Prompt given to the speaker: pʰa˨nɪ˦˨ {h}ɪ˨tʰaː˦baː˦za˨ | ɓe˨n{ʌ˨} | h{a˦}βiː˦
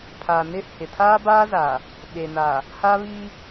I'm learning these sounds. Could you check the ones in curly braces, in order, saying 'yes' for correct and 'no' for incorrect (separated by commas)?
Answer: yes, no, yes